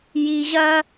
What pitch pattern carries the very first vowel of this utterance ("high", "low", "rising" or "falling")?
low